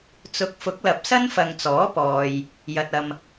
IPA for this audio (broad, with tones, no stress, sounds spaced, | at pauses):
t͡s ʊ˨˥ k̚ f ʊ˨˥ k̚ l ɐ˨˥ p̚ s ɐ˥ n f ɐ˨ ŋ t͡s ɔː˨˥ p ɔː˨ j | j ɐ˨ t̚ ɐ˨ m